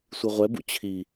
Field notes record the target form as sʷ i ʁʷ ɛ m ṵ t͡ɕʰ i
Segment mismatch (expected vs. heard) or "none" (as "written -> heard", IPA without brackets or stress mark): m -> b